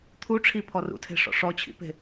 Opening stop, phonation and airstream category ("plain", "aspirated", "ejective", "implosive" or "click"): aspirated